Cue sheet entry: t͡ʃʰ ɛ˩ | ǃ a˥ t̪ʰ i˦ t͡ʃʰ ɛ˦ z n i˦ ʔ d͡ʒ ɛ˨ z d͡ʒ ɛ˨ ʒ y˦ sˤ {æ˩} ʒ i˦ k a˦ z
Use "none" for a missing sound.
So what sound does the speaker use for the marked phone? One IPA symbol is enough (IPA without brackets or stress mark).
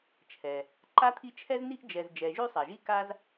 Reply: ɛ˩